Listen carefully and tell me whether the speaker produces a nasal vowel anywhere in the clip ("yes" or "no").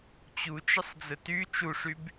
no